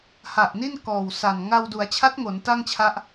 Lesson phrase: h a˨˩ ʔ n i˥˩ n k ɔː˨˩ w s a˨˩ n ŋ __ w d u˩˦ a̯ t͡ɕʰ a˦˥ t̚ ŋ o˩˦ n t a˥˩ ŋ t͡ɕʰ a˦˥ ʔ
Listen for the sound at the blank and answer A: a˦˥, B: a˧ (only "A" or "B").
B